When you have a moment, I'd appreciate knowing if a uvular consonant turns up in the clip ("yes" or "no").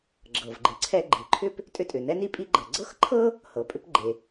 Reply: no